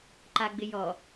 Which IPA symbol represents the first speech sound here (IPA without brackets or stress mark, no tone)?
ǃ